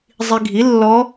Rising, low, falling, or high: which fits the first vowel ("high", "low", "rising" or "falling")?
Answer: low